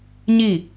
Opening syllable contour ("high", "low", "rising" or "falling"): falling